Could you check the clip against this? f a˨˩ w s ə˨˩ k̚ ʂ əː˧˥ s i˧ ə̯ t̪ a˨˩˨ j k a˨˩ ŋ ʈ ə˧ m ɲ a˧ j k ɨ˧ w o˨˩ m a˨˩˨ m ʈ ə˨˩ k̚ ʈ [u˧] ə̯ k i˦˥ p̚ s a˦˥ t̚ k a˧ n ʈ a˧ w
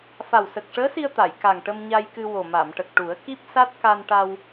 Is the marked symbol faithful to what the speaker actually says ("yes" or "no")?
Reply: no